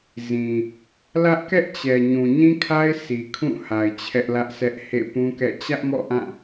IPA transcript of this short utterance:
z ĩ˨ | l ä˦ ʔ k ɛ˦ ʔ t͡ɕ ɛ˨ ɲ ũ˨ ɲ ĩ˦ kʰ a˦ ɪ̯ sʰ i˨ kʰ ũ˦˨ h a˨ ɪ̯ t͡ɕʰ ɛ˦ ʔ l ä˦ ʔ s ɛ˦ ʔ h ḛ˦˨ p ũ˦ k ɛ̰˦˨ t͡ɕ ä˦ ʔ m ɔ̰˦˨ ʔ ã˦˨

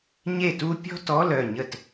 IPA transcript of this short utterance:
ɲ e˥˨ t u˥ pʲ ɔ̤˥ t ɔ˧˥˧ l œ˥˨ ɲ ə˥˨ t

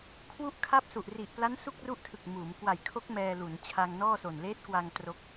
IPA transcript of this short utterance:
kʰ w u˥˩ ʔ kʰ a˥˩ p̚ s u˨˩ ʔ r i˨˩ ʔ p l a˦˥ n s u˥˩ k̚ r u˥˩ ʔ tʰ ɯ˨˩ k̚ m uː˩˦ m k w a˨˩ j kʰ o˦˥ k̚ m ɛː˧ l u˩˦ n t͡ɕʰ a˧ ŋ n ɔː˥˩ s o˨˩ n l eː˦˥ t̚ k w a˧ ŋ t r o˦˥ k̚

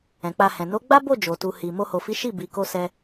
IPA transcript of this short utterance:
ɛ̃˨ k͡p a˧ h ɛ̃˨ n o˨˦ ɡ͡b a˦ b o˦˨ d͡ʒ o˨ t u˨ h i˨ m o˧ h o˨ f i˨˦ ʃ i˦˨ b i˨ k o˧ s ɛ˧

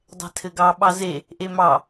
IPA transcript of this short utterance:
dˤ ɛ̤ tʰ ɘ ɡ ɑ ɓ ɑ z e | ʔ e m ɑ

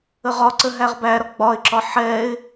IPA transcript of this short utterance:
ə ʁ ɒ ǀ ə ɦ æ ʁ b æ ɾ ɒ ɡ͡b ɒ ɪ̯ ǁ ɒ ħ ɛ ɪ̯

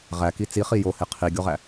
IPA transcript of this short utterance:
ʁ æ k i t͡s i χ i j o h e qʰ i ɡʲ o ʁ æ

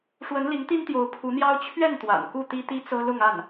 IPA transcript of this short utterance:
ʂ w ə˧˥ n l i˧˥ ŋ t̪ i˥ n t̪ j o˧˥ ʊ̯ pʰ u˧˥ n̪ j ɑ˥ ʊ̯ t͡ɕʰ ɥ ɛ˥˩ n t̪ w a̰˨˩ n k u˥˩ t̪ i˥ t̪ i˥ t͡s ɤ˥ l ʊ˥˧ ŋ a˥˩ n

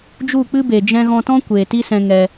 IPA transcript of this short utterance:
d͡ʒ u˦˨ k͡p ɨ˦ b e˨ d͡ʒ ɛ̃˧ ɣ ɔ̃˧ t ɔ̃˦ kʷ eː˨ t i˦ s ɛ̃˧ ŋ ɛ˧

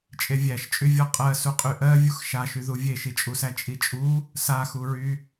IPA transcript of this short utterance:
t͡ʃʼ e vʲ æ ʃ t͡ʃʼ y vʲ ɔ qʼ ɜ s u qʼ y ʔ ɜ vʲ u x ʃ a ʃ y ð u vʲ e ʃ i t͡ʃʼ u s æ t͡ʃʼ i t͡ʃʼ u | s a x u ɹ y

